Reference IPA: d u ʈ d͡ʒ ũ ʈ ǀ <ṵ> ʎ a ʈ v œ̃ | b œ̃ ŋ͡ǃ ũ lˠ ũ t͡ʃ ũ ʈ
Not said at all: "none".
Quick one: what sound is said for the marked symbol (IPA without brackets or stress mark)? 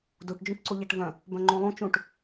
u